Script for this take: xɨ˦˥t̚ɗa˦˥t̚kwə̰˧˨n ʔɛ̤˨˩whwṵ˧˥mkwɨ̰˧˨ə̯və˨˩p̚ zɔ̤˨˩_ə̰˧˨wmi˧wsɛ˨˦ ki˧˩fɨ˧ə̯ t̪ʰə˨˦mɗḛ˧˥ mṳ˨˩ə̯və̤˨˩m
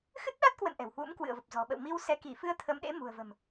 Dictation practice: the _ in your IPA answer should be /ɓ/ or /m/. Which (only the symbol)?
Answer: ɓ